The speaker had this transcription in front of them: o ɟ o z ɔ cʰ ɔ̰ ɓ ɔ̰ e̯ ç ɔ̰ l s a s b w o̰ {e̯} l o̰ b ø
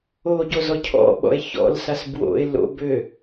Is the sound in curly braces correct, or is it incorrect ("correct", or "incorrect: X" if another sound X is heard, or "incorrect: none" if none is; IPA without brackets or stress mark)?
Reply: correct